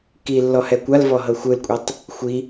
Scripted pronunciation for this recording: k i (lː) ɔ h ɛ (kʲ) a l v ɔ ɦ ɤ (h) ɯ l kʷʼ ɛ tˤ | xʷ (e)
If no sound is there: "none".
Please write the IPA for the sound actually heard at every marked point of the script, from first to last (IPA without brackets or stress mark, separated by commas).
lː, kʷ, xʷ, i